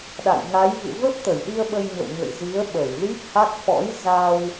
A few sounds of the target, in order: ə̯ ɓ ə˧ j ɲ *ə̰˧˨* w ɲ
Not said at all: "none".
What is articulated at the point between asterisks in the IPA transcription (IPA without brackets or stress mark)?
ə̰˧˨